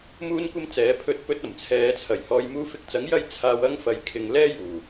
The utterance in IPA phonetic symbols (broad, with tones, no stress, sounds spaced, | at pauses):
m uː˧ n kʷ ɐ˧ m t͡s ɛː˨˧ pʰ ɵ˧ t̚ p ɵ˧ t̚ ɐ˨˩ m t͡sʰ ɛː˨˧ t͡sʰ ɐ˨˩ j h ɔː˧ j m uː˧ f ɪ˧ k̚ t͡s ɐ˨˥ ŋ j ɐ˧ j t͡sʰ aː˧ w ɐ˥ ŋ f ɐ˨ j kʰ ɪ˨ ŋ l ɛː˥ j uː˨˩